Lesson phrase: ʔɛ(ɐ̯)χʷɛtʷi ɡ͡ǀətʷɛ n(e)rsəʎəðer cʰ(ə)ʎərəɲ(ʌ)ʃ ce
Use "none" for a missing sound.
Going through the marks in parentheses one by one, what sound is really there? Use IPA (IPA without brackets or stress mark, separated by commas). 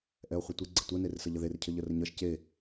o̯, e, ə, ʌ